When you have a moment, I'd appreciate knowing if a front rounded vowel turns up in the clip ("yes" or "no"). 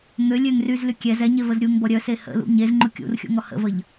yes